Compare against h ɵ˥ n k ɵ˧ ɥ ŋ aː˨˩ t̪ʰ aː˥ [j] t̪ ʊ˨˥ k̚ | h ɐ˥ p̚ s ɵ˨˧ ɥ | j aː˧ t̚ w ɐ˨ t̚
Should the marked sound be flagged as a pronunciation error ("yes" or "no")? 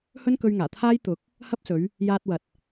no